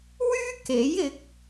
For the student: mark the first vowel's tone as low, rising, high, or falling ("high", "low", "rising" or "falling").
high